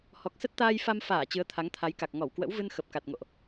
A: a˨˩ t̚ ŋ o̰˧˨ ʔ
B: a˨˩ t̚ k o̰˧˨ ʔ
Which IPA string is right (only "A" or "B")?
A